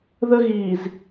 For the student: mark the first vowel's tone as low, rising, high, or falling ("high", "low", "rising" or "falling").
high